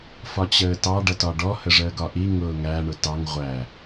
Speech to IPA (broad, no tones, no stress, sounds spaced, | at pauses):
f ɒ t͡ɕ əː t ɑ ɖ ʌ t ɒ ɖ ɔ h ə ʐ əː ɡ ɒ ʔ i ŋ ʊː ŋ æ ɳ ʊ t ɑ ŋ ʁʷ æ